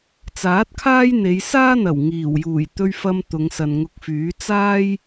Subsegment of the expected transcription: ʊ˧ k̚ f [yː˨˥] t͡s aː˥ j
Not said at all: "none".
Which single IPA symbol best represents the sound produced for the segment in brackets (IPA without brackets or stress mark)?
yː˨˥